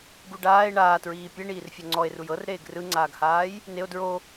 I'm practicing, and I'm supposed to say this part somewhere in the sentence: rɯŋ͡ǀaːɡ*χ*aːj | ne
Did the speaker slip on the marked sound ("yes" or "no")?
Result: yes